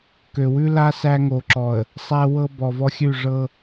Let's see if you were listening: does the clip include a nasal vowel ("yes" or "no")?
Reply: no